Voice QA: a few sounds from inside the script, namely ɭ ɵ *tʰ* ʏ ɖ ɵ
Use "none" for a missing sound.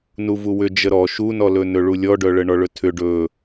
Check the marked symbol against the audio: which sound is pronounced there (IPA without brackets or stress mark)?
tʰ